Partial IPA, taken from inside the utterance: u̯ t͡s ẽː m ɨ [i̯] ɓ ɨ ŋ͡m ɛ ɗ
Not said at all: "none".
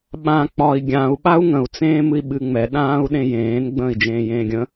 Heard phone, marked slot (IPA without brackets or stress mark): i̯